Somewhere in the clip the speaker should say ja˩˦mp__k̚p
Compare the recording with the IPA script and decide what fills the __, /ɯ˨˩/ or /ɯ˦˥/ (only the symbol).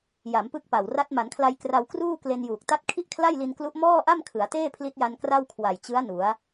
ɯ˦˥